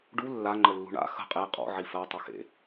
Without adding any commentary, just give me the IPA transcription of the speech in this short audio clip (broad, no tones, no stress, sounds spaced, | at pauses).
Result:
ɖ u lː a ŋ͡ǃ ə lː ṳ ɳ a̰ x ə̤ qʼ e qʼ ɔ̰ ʕ i f ɜ tˤ ə x ḛ